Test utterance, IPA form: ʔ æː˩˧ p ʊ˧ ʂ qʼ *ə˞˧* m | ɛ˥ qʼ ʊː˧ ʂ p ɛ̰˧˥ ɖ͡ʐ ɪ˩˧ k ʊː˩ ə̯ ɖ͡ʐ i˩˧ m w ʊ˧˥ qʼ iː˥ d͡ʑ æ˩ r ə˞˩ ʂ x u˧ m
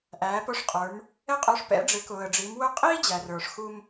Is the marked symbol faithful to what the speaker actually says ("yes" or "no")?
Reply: no